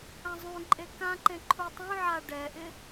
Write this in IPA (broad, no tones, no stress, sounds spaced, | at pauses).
ã zˤ ũ ǃʼ e k ã ǃ ẽ ǃʰ u tˤ ũ ʕ a ɖ ɛ ʔ ɪ